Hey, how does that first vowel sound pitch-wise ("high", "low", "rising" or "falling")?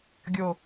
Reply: low